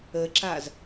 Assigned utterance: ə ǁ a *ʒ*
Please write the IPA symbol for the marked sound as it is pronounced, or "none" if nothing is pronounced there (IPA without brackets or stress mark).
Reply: z